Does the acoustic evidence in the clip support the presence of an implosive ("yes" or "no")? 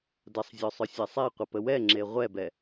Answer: no